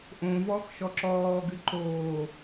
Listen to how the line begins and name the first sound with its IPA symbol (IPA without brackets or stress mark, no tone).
ʔ